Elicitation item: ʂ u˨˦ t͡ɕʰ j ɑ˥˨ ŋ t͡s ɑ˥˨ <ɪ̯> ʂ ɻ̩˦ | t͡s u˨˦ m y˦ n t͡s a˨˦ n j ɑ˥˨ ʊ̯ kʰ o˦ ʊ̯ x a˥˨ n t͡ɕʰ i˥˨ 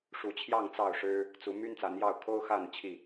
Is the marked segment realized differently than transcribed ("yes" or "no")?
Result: yes